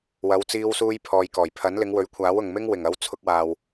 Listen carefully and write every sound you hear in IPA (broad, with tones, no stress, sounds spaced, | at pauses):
w ɐ˨˧ w t͡s iː˧ w s uː˧ j pʰ ɔː˨ j k ɔː˨˩ j pʰ ɐ˨˥ n l ɪ˨˧ ŋ w ɵ˨˥ ɥ kʷʰ aː˨˥ w ʊ˨ ŋ m ɪ˥ ŋ w ɪ˨˩ ŋ ɐ˨˧ w t͡sʰ ʊ˧ k̚ w aː˨ w